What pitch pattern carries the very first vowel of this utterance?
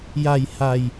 low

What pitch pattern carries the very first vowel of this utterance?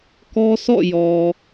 high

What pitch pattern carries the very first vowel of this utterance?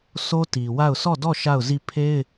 high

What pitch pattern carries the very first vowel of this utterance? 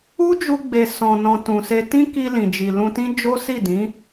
high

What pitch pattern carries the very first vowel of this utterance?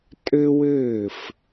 high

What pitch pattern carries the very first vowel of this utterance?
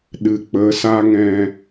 low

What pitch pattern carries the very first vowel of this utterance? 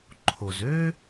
low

